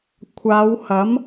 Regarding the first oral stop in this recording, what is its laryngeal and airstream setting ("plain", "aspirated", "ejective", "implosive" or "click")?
aspirated